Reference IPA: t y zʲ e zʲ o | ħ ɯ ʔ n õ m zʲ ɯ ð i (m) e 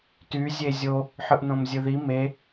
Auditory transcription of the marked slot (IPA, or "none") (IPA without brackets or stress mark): m